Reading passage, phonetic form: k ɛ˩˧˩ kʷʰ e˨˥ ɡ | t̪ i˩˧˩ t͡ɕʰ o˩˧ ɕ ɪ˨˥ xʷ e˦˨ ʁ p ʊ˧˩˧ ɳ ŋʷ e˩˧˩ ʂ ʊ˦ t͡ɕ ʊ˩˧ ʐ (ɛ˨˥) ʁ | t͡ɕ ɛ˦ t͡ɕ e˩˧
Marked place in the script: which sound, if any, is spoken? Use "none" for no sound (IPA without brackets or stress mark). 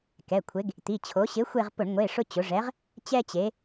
ɛ˨˥